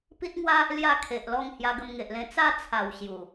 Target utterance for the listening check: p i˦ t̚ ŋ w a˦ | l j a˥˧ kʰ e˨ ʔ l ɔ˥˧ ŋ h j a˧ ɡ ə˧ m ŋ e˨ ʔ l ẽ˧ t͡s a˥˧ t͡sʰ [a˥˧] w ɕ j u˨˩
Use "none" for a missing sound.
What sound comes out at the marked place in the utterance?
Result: a˨˩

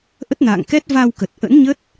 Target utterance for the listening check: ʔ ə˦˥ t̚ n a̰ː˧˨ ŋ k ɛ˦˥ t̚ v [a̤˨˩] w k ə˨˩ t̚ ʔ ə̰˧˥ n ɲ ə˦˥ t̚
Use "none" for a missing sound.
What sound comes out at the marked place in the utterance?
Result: a˧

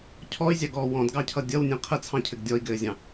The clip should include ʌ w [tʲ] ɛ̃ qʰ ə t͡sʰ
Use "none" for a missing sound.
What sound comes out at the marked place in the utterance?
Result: nʲ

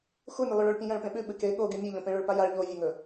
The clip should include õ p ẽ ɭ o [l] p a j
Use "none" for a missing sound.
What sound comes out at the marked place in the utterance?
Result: ɭ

